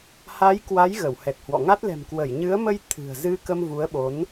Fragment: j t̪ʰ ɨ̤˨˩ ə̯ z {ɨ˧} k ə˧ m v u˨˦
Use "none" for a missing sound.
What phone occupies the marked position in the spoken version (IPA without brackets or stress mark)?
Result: ɨ˧